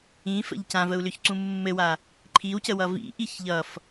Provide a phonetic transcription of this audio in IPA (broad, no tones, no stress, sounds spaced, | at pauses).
ĩ f ə̰ ʎ c ã v ə u̯ l ʏ ç ǀ ũ mː ɘ w a | ǃʰ i w c ə w ʌ v ḭ ʔ i ç ʎ ʌ f